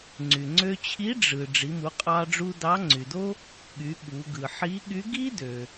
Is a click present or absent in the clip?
present